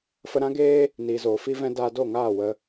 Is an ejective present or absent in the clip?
absent